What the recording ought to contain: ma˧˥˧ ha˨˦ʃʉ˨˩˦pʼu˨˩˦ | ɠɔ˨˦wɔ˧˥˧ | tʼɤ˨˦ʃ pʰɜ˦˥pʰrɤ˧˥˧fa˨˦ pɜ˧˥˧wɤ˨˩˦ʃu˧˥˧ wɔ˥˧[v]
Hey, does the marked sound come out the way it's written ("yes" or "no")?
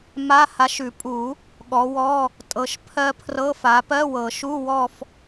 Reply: no